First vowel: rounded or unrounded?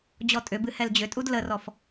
rounded